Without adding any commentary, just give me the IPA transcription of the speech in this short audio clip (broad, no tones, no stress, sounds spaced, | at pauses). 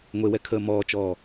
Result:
ŋʷ e w ɛ kʰ əː m ɔː t͡ʃ ɔː